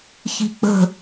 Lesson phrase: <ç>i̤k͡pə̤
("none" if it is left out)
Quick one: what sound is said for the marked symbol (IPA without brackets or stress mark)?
ç